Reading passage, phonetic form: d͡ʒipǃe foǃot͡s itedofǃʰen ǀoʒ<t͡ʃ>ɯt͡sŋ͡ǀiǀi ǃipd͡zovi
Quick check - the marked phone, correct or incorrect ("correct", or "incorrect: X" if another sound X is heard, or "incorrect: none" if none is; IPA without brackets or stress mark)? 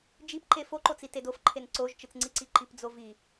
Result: correct